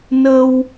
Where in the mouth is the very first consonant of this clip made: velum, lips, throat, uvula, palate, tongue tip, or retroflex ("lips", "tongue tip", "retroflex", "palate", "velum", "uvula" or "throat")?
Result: tongue tip